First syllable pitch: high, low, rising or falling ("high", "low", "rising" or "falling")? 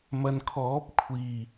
low